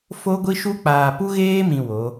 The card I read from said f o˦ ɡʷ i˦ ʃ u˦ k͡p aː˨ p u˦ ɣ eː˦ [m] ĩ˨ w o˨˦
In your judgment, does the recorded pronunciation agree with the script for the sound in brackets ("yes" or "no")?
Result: yes